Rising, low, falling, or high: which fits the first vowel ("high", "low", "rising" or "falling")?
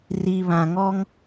low